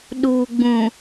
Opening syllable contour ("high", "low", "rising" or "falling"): low